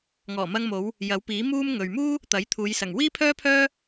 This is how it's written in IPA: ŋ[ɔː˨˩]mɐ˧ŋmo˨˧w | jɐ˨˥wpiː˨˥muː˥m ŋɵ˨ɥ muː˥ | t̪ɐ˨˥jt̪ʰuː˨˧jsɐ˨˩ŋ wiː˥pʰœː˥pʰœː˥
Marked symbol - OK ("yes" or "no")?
yes